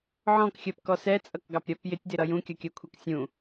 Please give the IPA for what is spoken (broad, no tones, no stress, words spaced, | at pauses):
ʕɔ̃kxʲɜpkɔ sɛt͡sʼʌkɡɑpɾʲɜp jɪtʲdɪɾʌ jũkʲʌkʲɜkʷʰɛk sʲũ